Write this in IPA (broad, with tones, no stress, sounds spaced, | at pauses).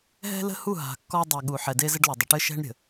ɦ ɛ̤˦ l ə̤˦ h u˦˨ ɦ a̤˨ kː ɔ˦ dˤ e˨ ɠ u˨ ħ ɛ˨ d e˦ z ɘ˦ ɖ l u˨ dˤ ə˨ ʈ ɘ˦ ʃ ɛ̤˦ ɳ ɾʲ ə̤˨